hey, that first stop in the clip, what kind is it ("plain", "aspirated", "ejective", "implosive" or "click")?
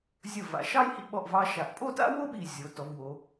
implosive